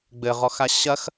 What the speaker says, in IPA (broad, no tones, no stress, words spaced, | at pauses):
ɡ͡bɘʁɔxa ɕɐx